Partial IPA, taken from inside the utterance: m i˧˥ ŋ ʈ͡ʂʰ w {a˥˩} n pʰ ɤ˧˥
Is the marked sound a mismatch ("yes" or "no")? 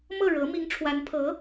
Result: yes